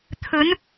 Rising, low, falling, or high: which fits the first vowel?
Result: rising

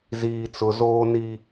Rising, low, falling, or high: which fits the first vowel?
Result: low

